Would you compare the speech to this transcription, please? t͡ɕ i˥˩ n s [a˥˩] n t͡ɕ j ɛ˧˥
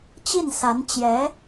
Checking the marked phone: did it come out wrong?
yes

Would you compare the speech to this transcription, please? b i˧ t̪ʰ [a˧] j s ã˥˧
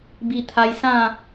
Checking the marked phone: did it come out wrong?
no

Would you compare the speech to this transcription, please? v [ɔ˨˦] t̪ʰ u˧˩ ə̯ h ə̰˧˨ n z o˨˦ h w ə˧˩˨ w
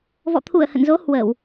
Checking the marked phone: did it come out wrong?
yes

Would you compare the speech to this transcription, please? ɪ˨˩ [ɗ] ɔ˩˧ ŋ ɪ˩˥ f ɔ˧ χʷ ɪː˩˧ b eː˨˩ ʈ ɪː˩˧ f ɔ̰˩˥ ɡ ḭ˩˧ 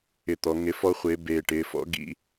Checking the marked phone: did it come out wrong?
yes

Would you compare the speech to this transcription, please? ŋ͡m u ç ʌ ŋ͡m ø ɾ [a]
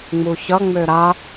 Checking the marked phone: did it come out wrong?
no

